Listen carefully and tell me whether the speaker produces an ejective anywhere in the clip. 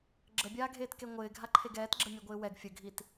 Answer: no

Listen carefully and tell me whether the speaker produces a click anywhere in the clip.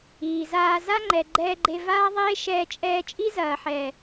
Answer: yes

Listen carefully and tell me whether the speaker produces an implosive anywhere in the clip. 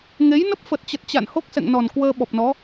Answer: yes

